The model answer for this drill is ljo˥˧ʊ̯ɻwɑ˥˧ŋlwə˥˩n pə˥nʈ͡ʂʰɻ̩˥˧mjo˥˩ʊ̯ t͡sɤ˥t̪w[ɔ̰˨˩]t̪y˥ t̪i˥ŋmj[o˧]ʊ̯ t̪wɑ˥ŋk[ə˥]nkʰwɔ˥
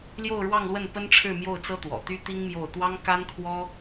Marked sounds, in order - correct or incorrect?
correct, incorrect, incorrect

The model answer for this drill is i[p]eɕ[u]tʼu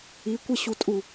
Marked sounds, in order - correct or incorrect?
incorrect, correct

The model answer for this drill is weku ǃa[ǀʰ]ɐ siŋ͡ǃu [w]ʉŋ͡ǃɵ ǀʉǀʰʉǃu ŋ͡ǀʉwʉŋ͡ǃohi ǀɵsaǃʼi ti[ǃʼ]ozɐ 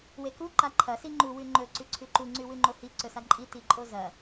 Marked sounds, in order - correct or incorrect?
incorrect, correct, correct

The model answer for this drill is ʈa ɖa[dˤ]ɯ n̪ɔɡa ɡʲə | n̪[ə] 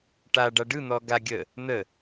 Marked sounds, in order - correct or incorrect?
incorrect, correct

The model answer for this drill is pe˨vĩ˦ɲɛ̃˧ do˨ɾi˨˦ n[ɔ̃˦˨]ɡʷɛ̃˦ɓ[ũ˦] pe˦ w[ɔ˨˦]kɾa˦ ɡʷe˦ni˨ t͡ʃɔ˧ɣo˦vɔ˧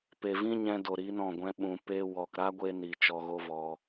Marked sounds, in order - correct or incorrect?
correct, incorrect, incorrect

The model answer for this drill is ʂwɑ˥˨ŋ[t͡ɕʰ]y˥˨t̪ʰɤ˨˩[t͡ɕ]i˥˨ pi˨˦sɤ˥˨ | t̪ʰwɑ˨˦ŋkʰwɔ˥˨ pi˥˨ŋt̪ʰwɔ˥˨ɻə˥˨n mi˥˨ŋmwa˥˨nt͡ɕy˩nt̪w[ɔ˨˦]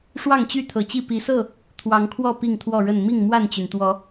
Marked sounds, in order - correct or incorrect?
incorrect, correct, correct

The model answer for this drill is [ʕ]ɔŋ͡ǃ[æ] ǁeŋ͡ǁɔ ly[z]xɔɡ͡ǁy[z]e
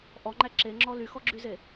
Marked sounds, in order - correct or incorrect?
incorrect, correct, incorrect, correct

